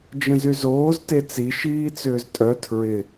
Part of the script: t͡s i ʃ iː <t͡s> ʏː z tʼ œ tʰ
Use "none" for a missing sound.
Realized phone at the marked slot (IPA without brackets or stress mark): t͡s